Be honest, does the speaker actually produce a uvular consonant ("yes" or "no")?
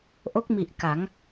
no